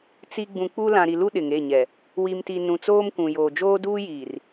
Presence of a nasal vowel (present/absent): present